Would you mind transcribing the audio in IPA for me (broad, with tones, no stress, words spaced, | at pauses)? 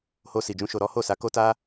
ho˧si˨d͡ʒũ˧ ʃo˧ɾɔ˦ ho˦˨sa˧ ko˦ ta˦